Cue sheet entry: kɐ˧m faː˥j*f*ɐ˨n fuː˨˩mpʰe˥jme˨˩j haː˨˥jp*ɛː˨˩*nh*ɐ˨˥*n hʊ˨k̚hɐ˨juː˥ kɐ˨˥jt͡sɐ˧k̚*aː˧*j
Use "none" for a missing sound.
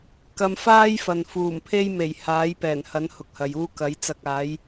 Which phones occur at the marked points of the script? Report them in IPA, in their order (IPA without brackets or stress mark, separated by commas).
f, ɛː˨˩, ɐ˨˥, aː˨˥